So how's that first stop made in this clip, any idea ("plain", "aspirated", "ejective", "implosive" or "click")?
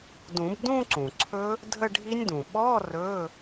plain